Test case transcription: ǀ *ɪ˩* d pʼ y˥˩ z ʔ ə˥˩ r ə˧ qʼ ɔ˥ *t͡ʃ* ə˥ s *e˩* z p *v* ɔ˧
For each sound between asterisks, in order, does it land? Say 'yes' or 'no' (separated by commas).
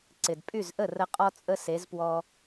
yes, no, no, no